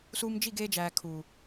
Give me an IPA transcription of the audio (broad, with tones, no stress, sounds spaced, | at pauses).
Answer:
s uː˧ m d͡ʒ i˦˨ ɡ eː˧ d͡ʒ æː˨ kʰ u˨